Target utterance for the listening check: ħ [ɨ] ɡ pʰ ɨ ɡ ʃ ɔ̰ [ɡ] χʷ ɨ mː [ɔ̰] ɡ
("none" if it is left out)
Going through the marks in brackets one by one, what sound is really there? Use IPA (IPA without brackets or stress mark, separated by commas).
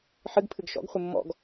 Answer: ɨ, ɡ, ɔ̰